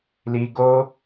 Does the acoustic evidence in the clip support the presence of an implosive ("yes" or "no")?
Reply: no